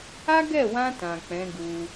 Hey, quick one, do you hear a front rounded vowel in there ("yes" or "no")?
no